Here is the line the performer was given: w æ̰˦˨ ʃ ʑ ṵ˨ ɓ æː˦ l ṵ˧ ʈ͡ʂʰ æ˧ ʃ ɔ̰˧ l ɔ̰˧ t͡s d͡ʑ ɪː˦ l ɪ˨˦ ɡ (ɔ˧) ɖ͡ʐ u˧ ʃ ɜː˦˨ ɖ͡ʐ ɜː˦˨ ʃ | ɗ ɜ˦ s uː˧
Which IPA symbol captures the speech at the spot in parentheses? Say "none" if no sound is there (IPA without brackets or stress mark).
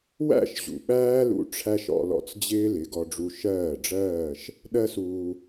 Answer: ɔ˧